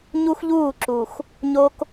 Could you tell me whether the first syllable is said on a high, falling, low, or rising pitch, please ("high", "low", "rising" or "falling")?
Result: high